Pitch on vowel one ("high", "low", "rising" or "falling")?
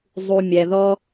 low